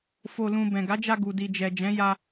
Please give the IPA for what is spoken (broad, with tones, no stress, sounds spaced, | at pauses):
f o˧ l ũ˧ b ɛ̃˨ ɡ a˨˦ d͡ʒ a˧ ɡ u˨ d i˨ d͡ʒ ɛ˨ d͡ʒ ɛ̃˨˦ j a˧